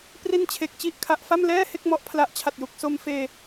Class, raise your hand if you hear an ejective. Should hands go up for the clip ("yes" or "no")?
no